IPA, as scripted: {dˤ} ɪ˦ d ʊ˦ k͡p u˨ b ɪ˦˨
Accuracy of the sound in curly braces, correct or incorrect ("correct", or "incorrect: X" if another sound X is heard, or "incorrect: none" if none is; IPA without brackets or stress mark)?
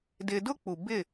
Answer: incorrect: d